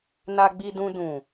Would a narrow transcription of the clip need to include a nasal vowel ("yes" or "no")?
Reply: yes